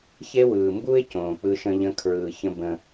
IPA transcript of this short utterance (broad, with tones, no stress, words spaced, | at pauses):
çe˦wɯː˨ mbu˦ɪ̯cõː˨ k͡pɯ˦ʃə̃˦ʎə̃˦ kʰɹɯː˨ çə̃˦ bə̃˦